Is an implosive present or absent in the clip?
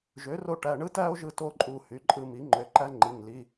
absent